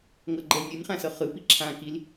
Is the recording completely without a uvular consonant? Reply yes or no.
no